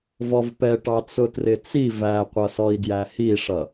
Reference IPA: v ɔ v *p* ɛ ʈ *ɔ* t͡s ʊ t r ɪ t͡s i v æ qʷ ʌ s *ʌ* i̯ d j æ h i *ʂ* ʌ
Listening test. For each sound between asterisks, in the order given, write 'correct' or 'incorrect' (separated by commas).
correct, incorrect, incorrect, correct